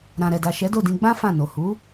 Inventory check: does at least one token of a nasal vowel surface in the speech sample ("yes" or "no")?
yes